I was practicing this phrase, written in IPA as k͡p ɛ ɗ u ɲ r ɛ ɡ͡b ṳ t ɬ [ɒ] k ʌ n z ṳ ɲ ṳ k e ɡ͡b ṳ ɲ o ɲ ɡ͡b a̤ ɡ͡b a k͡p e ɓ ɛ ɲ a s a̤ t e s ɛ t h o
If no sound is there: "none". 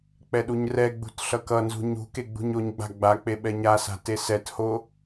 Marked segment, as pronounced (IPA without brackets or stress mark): ʌ